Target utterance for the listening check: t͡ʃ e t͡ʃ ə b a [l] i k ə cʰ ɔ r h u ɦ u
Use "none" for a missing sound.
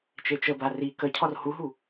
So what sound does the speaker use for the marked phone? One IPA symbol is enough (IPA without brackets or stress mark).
r